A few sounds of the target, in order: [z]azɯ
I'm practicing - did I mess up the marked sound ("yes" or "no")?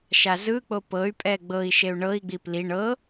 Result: yes